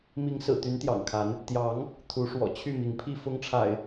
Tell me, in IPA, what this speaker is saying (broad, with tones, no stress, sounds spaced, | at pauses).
m i˨˦ ŋ s ɹ̩˨˩ t̪ y˨˦ n t̪ j ɑ̰˨˩ ŋ kʰ a˨˦ n | t̪ j ɑ˨˦ ŋ | t̪ʰ u˨˦ ʂ w ɔ̰˨˩ t͡ɕʰ y˥˨ m i˨˦ ŋ pʰ i˥˨ f ʊ˦ ŋ ʈ͡ʂʰ a̰˨˩ ɪ̯